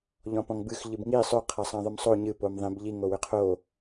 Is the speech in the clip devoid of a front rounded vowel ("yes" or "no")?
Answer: no